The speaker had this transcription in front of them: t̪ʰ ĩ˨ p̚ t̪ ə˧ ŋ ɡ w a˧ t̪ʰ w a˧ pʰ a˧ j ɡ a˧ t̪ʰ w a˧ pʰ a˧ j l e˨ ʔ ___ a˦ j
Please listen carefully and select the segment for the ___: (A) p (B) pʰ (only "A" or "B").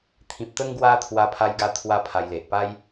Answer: A